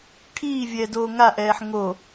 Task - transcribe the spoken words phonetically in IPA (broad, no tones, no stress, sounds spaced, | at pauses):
ʈʰ iː vʲ ɛː d oː ŋ a ʔ ɛː ħ ŋ o